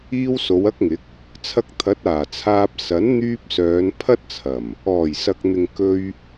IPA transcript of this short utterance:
iː˧w so˨˧wɐ˥k̚ŋɪ˨˥k̚ | t͡sʰɐ˧k̚t̪ʰɐ˨˥t̚ aː˨˩t͡sʰaː˧p̚ sɐ˨˥n n̪yː˧p̚sœː˨˧n pʰɐ˥t̚t͡sʰɐ˨˩m | ɔː˨˩jsɐ˨k̚n̪ɪ˨ŋ kɵ˧ɥ

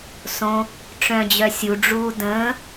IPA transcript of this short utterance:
sõ | ʈ͡ʂœ̃d͡ʑœ sʲuɖ͡ʐuː də̃ː

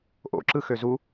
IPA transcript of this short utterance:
ʔo̰ǁɯxø zu

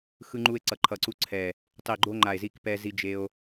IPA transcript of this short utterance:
xɯ˧ŋ͡ǃu˧e̯ǀʌ˨˩ ǃʰʌ˨˩ǀu˧ǀʰɛ˨˩ | tˤi˨˩ɡ͡ǃo˧ ŋ͡ǃa˨˩e̯zi˧kpɛ˧zi˧ d͡ʒe˧o̯

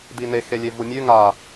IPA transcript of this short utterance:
dine xelʲevumʲʉ ŋa

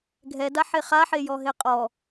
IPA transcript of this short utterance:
ɡʱɛdaħe χaħejɔɦe qʼɔ

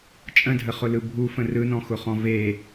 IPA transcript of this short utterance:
t͡ʃʼə̃dʱəχʊlɯ bʱufə̃ rɯnɔ̃xʊχɔ̃ ve

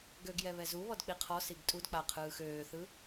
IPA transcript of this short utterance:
ɡøɡjɛ βɛzuβɔd k͡piqʰɔsiɡ tʼudk͡pa qʰɯːxøːθɯ

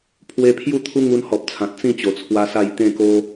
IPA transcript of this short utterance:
pʰwe˧pʰju˥˧t̪ʰu˦ ŋu˧nhɔ˨p̚t͡sʰã˨t̚ t͡sĩ˥˧t͡ɕo˨˩t͡sʰwa˧ sa˥˧j t̪ẽ˥˧ ko˦

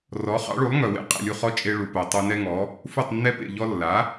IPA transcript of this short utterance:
rɔ˩˥ χɑ̰˩˥ɭu˩˥lˠ ŋœ˩wḛ˥ qʼḛ˥˩lʲu˥˩χɔ˥ t͡ʃʼe˧ɭu˩ po˩ tˤu˧nɛ˥ŋɔ˩˥ | fu˥˩tˤnːɛ˥pḛ˥˩ʎɔ˥ lːa˩˥

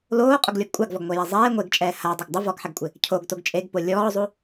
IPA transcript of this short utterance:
loːqʼʊɡlʲɔɡ kʷʼaɡvɔɡŋʷɛja zˤɛː ŋʷeɡt͡ʃʼɛː hadˤʊɡ dˤɪ vɔɡħɛɡkʷʼɪ | cʰoɡtoɡ t͡ʃʼeɡpo lʲɔːzˤu

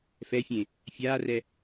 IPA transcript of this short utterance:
fɛfʲẽ | fʲaːrɛ

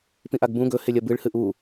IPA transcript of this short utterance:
pĩʔaɡbũ ɡɵhelʲɐ bɨɭhɨ ʔu

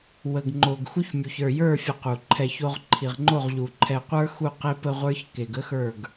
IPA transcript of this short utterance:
wə˨ɡ ŋ͡ǃo˨ɡ xu˦çmʲu˨ç ə˞˨jə˞˦˨fʲə˨ qu˨ǃʰɛ˦˨ço˦ʁ ǃʰi˨ʁŋ͡ǃo˦˨ʁʎu˨ ǃʰɛ˨qʷə˞˦xu˦˨ qe˦pə˦ʁʷə˞˦ç ke˨ɡə˦xə˞˦˨ɡ

